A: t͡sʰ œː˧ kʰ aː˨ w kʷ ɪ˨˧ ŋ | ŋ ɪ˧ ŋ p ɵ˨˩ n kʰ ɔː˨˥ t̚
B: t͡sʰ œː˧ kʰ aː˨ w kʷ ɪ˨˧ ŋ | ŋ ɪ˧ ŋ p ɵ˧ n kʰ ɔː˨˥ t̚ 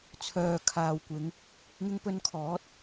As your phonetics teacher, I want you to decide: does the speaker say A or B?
B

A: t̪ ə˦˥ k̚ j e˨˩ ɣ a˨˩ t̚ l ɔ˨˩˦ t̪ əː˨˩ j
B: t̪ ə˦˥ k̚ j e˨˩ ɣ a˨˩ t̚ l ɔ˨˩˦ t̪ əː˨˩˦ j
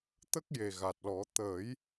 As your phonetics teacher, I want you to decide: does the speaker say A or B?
B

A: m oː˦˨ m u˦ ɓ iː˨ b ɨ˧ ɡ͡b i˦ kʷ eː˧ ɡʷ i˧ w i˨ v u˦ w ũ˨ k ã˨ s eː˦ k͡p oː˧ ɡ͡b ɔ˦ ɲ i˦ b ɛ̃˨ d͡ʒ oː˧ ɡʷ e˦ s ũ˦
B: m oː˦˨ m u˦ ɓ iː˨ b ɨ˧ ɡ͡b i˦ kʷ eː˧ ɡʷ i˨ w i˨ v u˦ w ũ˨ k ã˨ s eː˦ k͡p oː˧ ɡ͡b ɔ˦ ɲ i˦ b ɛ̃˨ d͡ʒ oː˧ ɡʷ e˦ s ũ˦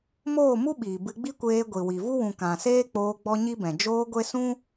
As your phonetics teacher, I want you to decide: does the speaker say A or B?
B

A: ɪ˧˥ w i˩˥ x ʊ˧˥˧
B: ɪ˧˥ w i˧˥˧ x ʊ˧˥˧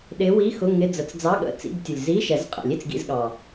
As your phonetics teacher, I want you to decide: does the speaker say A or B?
B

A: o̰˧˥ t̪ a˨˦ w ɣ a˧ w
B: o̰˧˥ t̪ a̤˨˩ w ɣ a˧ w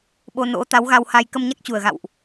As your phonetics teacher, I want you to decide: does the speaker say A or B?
A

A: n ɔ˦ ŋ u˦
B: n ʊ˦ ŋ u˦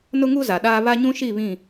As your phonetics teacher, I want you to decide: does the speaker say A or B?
B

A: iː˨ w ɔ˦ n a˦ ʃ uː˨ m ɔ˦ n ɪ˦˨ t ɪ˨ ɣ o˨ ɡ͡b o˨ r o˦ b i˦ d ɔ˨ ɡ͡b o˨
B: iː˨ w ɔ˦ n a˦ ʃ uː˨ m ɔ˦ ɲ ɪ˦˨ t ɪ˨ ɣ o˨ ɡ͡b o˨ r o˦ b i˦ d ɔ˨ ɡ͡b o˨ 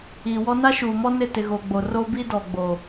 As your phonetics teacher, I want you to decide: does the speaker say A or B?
A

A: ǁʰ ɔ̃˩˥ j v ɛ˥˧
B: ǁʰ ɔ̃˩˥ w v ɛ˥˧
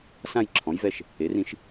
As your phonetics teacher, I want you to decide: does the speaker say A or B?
A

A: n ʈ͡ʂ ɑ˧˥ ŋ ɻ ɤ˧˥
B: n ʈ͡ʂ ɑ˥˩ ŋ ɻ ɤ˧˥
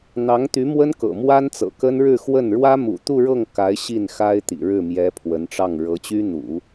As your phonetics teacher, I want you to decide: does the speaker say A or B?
B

